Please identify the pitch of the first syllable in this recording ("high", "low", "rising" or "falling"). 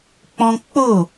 high